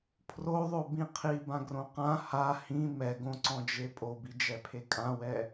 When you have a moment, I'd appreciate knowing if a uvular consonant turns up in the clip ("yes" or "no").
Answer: yes